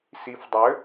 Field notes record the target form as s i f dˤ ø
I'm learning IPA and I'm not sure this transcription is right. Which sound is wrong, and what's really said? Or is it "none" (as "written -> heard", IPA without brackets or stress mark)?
none